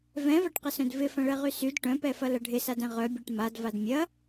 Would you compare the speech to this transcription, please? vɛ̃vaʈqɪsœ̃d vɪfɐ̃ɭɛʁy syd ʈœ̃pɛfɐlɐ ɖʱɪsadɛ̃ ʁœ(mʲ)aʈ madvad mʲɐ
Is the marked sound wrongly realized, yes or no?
yes